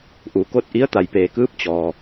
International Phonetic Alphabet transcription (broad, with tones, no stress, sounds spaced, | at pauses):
ʔ u˩ k o˥˨ t̚ ʔ i˧˥ ə̯ t̪ a˩ j p eː˩ k ɯː˧˥ p̚ t͡ɕ ɔː˩